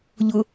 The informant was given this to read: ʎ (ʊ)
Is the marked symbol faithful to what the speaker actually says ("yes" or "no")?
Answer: yes